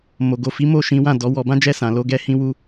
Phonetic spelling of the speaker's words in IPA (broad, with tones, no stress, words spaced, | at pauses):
mo˨ɡo˨fi˨˦ mo˦˨ʃĩ˨˦ wã˦˨dɔ˨˦wɔ˧ bã˦d͡ʒɛ˦˨sã˨lo˨˦ ɡɛ˦hĩ˦wu˦